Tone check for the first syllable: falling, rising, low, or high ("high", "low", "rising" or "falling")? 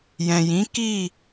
low